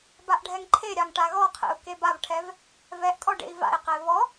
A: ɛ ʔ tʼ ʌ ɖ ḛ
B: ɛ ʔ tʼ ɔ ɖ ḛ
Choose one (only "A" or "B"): B